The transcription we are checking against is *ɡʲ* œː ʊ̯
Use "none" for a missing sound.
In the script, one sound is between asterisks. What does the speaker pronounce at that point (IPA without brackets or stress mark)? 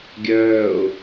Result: ɡʲ